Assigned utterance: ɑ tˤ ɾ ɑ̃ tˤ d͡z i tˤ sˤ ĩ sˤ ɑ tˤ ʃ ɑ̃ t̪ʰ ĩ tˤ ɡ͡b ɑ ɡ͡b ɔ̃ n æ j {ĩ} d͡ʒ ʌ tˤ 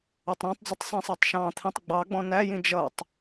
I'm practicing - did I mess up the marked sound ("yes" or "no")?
no